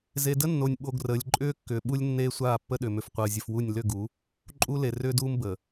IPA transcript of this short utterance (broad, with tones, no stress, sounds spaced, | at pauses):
z e˨ d ə˦ nː o˨ nʲ ɓ o˨ ɡ r əː˨ lʲ ǃʼ ʏː˦ kː ʏː˨ ɓ u˦ lʲ nː eː˦ sʷ aː˦˨ pː ə˦ ɗ ʏ˨ m ʏ˨ f qʷ əː˨ zʲ ə˨ f w u˦˨ nʲ l ʏ˦˨ ɡ u˨˦ | ǃʼ u˦ l e˨ r ʏː˦ d uː˦ m b ə˨